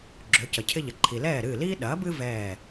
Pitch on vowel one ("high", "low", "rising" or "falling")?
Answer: rising